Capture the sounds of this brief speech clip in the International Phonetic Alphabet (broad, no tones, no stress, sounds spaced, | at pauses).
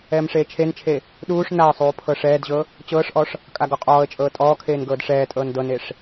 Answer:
ɛː m ʂ eː t͡ʃʰ e n t͡ʃʰ e | ɗ uː ʂ n a ə̯ sˤ uː pʰ ɤ ʂ ɛː d ʑ ɤ | t͡ɕ ɤː ʂ ʔ ɔ ʂ | kʼ a ɡ ɔ qʼ ɔː ə̯ t͡ʃʼ ɤː tʼ ɔː kʰ eː n ɡ ɤː d ʂ ɛː tʼ ɤː n d ɤ n e ʂ